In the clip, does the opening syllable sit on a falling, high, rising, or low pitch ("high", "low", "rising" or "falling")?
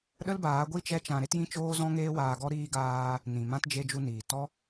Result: high